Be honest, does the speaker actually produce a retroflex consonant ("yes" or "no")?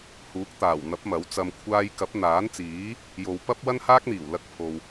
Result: no